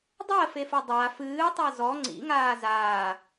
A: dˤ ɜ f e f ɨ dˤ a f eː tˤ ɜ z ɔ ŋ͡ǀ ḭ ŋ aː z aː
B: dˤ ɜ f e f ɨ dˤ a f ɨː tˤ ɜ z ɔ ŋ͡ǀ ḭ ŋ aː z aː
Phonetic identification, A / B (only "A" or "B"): B